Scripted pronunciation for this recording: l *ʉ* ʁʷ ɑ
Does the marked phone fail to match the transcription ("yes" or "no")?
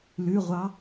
no